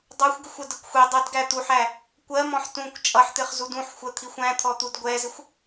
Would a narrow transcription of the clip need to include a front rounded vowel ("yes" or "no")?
no